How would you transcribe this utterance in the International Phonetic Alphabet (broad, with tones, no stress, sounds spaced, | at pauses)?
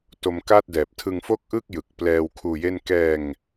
t o˧ m k aː˥˩ t̚ d ɛː˨˩ p̚ tʰ ɯ˧ ŋ f o˥˩ k̚ ʔ ɯ˥˩ k̚ j ɯ˨˩ k̚ p l ɛː˧ w kʰ uː˧ j e˥˩ n k ɛː˧ ŋ